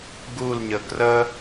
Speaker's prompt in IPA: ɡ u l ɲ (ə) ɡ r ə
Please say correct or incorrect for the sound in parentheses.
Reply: correct